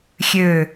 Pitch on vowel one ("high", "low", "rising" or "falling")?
low